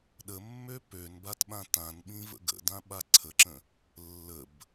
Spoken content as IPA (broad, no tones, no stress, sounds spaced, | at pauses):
ɗ ə mː ø p ø n b a t ɓ ã t ã n ɓ ĩ v ə̰ ɡ ə̰ d ã ɓ a ǀʰ ə ǁ ə̃ | lː ə b